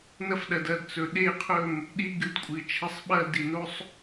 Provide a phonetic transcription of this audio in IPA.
nɐ˦fɗɐ˨dɐ˦˨d t͡sɵ˨ɗe˦˨qʰɵ˦˨m | ɗi˦ɡɨ˩˥d kʷʼɨ˨t͡ʃʰɐ˦˨sˤɓɐ˦ di˨no˦sˤ

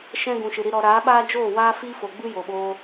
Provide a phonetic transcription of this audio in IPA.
ʃɛ̃˦ ɡũ˨ʃɨ˨ɾi˧ ɾɔ˧ ɾaː˨˦ɓaː˦d͡ʒoː˦˨ waː˦fi˦fo˨ɡ͡bɨ˦ jo˨ɓoː˧

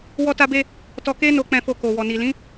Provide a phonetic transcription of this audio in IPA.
wɔ˧ta˧be˧ | tɔ˧ke˦no˧ k͡pɛ̃˧fo˧ ko˨wɔ˨ni˨lĩ˨˦

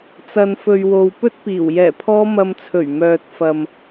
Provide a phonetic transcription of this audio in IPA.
t͡sɐ˨nfɵ˨ɥwo˨w pɵ˥t̚piː˨˩w jɛː˨˩pʰɔː˧mɐ˨mt͡sʰɵ˨˩ɥ mœː˨t̚fɐ˨m

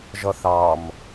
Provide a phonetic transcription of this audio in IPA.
ʒʌθɑm

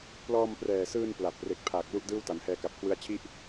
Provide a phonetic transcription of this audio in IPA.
plɔː˧mprɛː˨˩sɯː˧n pla˨˩p̚re˨˩k̚pʰaː˨˩k̚ lu˥˩ʔdɯː˥˩wta˩˦n hɛː˧ka˨˩p̚kʰwɯ˦˥a̯t͡ɕʰi˥˩ʔ

